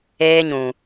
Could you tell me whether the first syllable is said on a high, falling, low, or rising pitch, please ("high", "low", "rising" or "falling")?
high